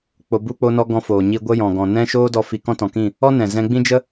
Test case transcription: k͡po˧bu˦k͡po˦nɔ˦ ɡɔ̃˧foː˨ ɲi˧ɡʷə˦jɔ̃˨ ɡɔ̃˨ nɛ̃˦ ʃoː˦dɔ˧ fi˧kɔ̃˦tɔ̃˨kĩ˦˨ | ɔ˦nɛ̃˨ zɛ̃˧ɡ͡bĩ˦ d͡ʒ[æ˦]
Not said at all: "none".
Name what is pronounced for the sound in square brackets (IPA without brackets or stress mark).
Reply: ə˦